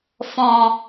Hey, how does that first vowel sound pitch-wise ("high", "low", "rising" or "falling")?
low